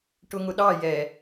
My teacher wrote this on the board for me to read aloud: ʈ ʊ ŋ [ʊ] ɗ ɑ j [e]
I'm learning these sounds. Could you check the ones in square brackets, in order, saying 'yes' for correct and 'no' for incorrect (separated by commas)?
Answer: yes, no